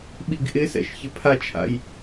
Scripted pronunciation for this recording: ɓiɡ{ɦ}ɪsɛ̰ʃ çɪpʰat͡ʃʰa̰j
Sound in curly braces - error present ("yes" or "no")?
yes